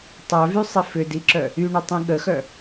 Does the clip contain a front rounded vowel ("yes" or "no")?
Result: yes